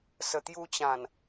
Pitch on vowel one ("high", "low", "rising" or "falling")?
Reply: low